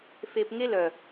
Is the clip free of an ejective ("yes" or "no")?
yes